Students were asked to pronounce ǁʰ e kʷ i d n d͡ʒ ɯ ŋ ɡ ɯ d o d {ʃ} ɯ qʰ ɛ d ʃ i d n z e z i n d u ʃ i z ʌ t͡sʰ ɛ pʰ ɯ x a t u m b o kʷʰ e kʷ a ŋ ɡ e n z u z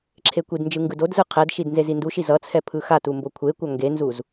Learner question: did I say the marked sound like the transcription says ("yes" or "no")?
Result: no